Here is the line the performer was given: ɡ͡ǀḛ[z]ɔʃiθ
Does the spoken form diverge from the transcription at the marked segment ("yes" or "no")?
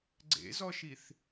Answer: no